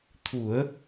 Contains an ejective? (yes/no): no